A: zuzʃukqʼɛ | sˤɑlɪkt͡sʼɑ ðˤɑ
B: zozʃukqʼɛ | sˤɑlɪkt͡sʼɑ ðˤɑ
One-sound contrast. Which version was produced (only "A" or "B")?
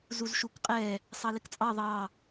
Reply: A